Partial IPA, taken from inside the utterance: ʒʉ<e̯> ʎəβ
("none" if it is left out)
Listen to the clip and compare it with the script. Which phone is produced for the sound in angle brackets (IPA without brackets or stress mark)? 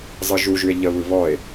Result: e̯